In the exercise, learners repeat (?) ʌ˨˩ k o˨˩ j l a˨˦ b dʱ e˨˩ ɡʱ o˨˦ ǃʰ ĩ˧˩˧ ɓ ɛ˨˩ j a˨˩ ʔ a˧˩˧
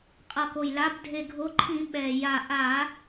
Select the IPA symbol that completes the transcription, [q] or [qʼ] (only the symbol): qʼ